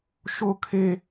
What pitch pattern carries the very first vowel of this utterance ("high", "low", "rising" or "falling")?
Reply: high